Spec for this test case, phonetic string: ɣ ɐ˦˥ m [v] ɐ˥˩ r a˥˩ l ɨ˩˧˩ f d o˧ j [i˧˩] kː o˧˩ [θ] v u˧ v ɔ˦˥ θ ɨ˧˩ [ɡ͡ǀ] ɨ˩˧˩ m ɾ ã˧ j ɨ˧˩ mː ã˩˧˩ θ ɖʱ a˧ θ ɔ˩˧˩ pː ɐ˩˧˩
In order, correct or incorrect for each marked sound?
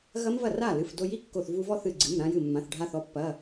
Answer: correct, incorrect: i˥˩, correct, correct

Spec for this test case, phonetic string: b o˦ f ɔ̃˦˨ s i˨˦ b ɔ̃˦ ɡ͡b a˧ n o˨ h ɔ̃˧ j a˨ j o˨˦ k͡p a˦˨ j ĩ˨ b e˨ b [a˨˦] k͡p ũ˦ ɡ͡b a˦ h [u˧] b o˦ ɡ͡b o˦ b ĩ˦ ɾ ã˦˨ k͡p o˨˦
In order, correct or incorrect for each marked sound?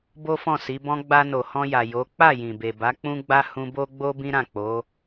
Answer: correct, incorrect: ũ˧

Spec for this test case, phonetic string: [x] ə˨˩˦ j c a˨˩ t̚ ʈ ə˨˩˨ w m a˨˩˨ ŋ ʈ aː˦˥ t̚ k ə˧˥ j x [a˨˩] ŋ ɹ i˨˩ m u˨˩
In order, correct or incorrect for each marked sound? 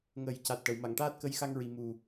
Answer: incorrect: ŋ, incorrect: a˧

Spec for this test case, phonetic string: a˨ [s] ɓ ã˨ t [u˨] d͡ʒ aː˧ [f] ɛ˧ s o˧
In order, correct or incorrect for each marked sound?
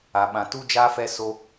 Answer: incorrect: none, incorrect: u˧, correct

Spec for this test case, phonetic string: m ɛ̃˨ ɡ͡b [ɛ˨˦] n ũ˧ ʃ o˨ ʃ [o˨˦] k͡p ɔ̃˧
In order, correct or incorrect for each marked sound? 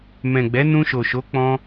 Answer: correct, correct

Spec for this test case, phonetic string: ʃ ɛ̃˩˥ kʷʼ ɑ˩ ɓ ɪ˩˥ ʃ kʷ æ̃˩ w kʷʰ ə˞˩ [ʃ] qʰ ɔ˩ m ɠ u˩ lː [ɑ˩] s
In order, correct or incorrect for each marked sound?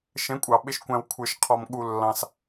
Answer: correct, incorrect: ɑ̃˩

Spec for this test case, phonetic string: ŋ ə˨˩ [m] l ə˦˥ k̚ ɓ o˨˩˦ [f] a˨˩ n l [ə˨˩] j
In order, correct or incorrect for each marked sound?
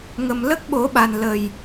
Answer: correct, incorrect: ɓ, correct

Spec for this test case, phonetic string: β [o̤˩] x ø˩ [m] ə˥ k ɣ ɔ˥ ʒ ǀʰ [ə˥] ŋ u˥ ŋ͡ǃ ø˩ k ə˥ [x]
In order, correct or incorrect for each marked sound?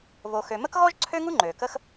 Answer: incorrect: o˩, correct, incorrect: ø˥, correct

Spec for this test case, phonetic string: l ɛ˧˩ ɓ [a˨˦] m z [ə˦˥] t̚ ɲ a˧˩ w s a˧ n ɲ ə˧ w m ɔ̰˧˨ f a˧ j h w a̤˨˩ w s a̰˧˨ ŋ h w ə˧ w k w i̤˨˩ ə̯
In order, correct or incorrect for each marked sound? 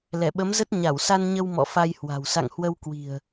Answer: incorrect: ə˨˦, correct

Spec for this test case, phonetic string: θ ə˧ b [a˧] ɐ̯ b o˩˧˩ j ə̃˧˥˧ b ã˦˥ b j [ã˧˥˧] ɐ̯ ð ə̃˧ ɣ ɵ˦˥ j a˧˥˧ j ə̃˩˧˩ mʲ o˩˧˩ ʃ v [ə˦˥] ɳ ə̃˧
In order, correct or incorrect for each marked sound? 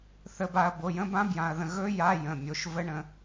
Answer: correct, incorrect: ã˧, correct

